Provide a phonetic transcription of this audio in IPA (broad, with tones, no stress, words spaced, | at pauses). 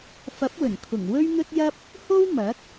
fɐ˨˥p̚wɵ˨˩nkʰʊ˨˩ŋ wɵ˥ɥn̪ɵ˥t̚jɐ˥p̚ | ho˥w mɐ˨˥k̚